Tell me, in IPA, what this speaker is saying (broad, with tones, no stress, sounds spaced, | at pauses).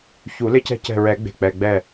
ç u˨˩˦ l ɪ˦ c ɛ̤˦ c ɛ̤˧˩ ɹ ɛ˨˩˦ ɡ͡b e̤˧˩ k͡p ɛ˩˧˩ ɡ͡b ɛ˧˩